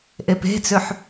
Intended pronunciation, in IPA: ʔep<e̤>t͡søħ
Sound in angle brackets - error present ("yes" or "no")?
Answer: no